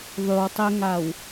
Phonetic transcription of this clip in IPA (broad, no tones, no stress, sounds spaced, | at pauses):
ðˤ y w tˤ e ŋ a w